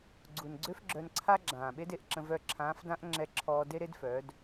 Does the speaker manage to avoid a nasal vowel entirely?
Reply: no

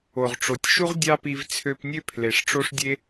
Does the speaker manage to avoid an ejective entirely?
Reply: yes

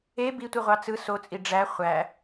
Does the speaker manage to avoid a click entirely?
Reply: yes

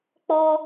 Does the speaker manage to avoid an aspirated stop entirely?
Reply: yes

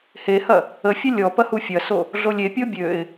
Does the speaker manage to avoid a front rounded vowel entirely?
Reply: no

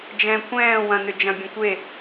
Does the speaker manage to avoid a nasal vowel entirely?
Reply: no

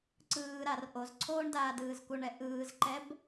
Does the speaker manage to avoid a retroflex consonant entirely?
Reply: no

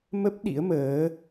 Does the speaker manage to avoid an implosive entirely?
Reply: no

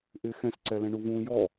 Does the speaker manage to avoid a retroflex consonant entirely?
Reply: no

